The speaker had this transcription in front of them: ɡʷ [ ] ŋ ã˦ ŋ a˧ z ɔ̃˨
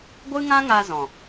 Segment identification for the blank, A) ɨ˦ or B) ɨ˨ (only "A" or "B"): A